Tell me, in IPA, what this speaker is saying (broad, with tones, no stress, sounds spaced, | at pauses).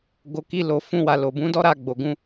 ɡ o˨ k i˧ l o˨ f ũ˧ w a˨ l o˨ b ũ˨˦ d ɔ˦ ɾ a˧ ɡ͡b o˨ ɡ ũ˨˦